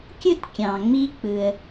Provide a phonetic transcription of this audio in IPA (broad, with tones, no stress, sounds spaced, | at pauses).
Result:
kʲ ɯ˥˧ t kʲ ɑ̃˨ ŋ͡m i˦˥ k͡p ɯ˨ ə̯